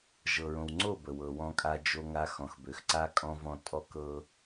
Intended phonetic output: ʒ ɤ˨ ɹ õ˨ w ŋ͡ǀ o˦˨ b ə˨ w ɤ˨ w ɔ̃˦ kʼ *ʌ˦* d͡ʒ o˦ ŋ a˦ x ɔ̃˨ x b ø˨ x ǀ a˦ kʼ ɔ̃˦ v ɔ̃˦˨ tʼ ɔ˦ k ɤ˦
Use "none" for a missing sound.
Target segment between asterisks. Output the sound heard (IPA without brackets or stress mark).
a˦